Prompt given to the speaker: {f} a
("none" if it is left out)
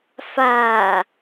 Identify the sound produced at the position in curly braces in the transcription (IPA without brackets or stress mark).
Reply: f